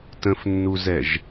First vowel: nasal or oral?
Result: nasal